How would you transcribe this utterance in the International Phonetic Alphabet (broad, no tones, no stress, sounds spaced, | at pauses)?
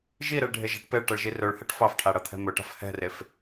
ʒ i ɾ e ɭ ɖʱ e ʒ a̤ ʈ p e ɭ ʈ ʌ ɭ ʒ i r ɵ ɭ h ɛ ʈ f ɑ f ʈʰ a ɽ ʌ t̪ʰ ɛ̤ m ɵ ʈ a̤ f h ɛ̤ r e f